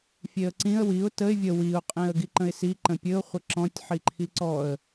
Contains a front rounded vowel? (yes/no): no